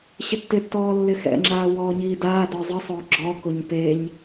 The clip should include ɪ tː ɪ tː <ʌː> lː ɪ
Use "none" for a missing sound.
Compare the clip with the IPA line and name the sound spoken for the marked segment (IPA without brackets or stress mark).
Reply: ɔː